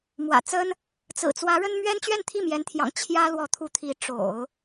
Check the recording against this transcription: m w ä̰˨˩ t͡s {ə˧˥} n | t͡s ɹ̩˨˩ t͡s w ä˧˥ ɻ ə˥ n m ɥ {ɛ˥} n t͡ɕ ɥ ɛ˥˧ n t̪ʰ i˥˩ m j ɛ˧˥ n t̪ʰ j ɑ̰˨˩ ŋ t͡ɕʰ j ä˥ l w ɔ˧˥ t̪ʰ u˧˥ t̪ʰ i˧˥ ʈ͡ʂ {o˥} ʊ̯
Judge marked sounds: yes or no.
no, yes, no

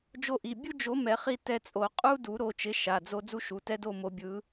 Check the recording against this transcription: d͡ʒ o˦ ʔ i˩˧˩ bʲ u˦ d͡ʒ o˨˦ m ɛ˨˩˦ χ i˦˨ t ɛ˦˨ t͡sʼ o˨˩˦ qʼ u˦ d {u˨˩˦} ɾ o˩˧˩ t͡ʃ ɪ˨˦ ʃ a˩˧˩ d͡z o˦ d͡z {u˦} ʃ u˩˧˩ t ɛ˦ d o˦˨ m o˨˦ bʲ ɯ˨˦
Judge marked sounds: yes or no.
yes, yes

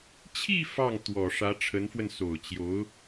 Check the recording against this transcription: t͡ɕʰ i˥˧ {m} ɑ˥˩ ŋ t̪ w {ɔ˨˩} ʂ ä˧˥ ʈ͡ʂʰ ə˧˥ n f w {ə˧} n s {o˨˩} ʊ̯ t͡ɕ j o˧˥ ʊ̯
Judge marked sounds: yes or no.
no, yes, yes, yes

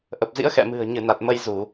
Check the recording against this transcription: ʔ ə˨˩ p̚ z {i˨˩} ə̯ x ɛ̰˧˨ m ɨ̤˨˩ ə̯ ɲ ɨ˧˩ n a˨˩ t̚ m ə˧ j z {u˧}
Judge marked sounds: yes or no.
no, no

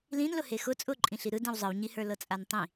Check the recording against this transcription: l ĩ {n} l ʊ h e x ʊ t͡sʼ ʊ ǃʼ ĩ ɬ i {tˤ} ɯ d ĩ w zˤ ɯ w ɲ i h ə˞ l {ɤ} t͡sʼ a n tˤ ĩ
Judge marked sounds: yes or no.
yes, no, yes

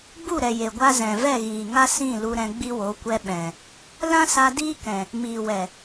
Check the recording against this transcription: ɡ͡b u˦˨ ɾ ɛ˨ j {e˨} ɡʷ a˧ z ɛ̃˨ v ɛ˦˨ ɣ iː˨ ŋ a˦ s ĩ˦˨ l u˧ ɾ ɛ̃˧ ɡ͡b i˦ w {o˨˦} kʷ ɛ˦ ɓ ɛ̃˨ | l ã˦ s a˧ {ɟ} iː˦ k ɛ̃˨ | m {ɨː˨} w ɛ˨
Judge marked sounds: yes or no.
yes, yes, no, no

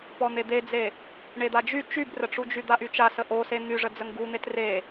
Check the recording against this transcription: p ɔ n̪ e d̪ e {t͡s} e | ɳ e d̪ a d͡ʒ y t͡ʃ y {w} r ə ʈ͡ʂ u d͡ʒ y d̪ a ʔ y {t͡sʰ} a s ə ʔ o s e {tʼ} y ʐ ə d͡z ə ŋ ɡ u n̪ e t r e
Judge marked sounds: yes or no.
no, no, no, no

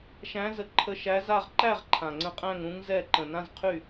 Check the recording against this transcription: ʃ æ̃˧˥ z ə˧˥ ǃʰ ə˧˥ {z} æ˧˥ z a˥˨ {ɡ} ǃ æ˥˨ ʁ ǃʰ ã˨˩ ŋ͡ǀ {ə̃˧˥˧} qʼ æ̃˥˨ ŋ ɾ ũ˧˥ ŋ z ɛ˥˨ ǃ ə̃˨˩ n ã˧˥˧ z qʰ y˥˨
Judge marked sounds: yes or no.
no, no, no

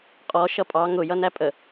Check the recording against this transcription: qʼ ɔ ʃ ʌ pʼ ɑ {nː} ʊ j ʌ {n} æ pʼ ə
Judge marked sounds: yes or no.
no, yes

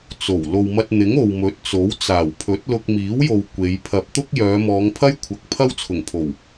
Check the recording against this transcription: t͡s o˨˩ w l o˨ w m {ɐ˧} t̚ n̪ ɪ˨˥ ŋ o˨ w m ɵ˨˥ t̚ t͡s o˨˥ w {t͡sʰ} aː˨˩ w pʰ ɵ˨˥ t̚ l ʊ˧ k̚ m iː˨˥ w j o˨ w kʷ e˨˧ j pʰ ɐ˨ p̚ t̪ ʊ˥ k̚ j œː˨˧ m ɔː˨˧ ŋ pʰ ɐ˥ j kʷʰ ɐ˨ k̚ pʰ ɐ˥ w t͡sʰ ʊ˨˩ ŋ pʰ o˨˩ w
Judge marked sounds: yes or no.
yes, no

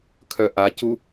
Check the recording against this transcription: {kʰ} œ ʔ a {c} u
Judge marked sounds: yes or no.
yes, yes

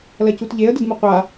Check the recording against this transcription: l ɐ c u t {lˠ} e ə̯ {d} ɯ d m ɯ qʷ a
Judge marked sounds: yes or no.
no, yes

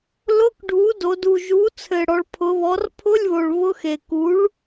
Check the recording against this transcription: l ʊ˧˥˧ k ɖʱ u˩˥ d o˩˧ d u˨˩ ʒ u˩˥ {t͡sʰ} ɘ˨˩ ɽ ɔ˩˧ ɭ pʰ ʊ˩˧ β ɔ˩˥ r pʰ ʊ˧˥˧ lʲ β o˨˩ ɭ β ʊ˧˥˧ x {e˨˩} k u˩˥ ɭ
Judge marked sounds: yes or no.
yes, yes

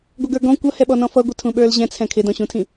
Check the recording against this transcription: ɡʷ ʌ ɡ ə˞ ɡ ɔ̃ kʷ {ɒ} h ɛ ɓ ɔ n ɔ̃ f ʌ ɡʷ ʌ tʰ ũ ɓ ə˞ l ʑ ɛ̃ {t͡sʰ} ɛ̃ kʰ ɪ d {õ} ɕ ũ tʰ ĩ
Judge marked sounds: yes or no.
no, yes, no

